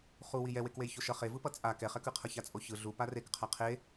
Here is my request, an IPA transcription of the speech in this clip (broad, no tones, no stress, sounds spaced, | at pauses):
χ u w i j ɛ w e k w e j ç o ʃ ʌ χ e v ɯ p ʌ t͡sʼ a k ɛ χ ɛ k ɯ qʰ ʌ ç a t͡sʼ o ç ɯ ɮ u p a r e k qʰ a qʰ e